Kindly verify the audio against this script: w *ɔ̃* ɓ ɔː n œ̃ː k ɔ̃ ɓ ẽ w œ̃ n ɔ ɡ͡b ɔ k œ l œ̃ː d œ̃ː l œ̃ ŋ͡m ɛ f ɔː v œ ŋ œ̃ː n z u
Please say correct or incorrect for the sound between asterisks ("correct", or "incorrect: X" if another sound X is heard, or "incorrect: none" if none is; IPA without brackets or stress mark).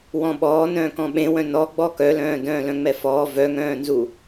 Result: correct